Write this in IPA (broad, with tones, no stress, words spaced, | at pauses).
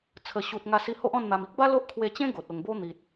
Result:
t͡sʰə˨˩ɕu˨t̚ ŋa˧si˧ho˦ʔ ɔ̃˥˧nn̪a˧m i˦k̚ba˦ lo˦ʔkʰwe˧t͡ɕẽ˦ ɡo˨t̚ o˨˩ŋbo˦ n̪i˨t̚